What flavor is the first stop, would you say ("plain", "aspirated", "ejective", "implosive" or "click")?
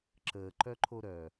click